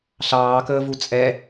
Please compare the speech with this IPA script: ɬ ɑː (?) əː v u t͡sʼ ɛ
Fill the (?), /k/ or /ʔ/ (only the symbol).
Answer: k